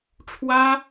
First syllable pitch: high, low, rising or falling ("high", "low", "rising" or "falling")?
high